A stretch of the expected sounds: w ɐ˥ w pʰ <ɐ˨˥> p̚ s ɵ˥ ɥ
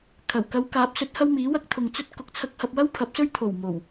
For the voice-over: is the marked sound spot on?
yes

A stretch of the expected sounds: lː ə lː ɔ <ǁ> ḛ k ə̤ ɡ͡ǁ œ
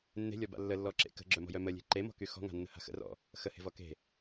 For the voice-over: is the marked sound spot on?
yes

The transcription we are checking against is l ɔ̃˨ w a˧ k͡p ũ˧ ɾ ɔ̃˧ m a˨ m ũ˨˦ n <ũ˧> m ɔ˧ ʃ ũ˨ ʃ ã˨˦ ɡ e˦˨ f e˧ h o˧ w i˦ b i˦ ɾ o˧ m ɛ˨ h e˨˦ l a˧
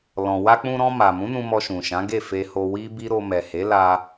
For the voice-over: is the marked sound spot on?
yes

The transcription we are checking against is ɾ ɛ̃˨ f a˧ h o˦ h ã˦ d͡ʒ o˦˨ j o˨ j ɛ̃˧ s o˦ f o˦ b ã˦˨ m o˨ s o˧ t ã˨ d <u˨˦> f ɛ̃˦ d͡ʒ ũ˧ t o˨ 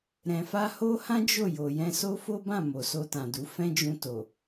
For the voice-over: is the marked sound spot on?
yes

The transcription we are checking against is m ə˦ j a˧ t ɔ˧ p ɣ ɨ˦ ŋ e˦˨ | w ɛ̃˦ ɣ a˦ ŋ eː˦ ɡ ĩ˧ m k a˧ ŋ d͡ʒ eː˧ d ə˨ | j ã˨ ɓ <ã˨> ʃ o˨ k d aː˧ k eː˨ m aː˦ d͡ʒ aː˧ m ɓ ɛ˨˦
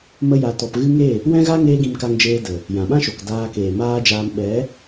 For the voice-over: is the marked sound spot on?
no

